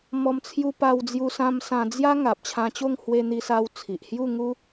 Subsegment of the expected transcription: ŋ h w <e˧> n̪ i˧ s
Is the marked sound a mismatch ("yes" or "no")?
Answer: no